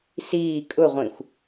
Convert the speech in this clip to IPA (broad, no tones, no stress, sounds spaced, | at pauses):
s iː kʼ ʊ ʁʷ ĩ xʷ